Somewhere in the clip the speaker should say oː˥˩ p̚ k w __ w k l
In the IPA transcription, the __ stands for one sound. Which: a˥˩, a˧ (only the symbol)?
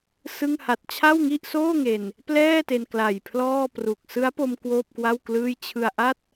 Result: a˥˩